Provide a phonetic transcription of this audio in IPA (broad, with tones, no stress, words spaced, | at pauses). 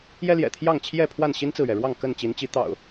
jɛ˦ljɛ̰˨˩t̪ʰjɑ˥˨ŋ t͡ɕʰjɛ˥˨pʰwa˥˨n ɕi˦nt͡sɹ̩˨ɥɛ˩ɻwɑ˥˨ŋ kə˥˨nt͡ɕi˨˦nt͡ɕi˨˦ t̪ɑ̰˨˩ʊ̯